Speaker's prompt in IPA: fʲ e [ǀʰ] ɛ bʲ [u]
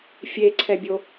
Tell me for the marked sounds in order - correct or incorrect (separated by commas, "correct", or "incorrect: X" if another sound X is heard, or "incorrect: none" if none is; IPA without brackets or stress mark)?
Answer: correct, incorrect: o